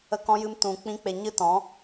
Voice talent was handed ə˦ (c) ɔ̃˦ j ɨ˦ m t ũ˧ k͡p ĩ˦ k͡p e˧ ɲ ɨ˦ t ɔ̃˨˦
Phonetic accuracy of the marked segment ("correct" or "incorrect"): incorrect